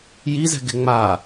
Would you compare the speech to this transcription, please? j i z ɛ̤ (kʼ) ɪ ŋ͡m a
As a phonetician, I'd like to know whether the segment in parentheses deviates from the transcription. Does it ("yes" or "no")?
yes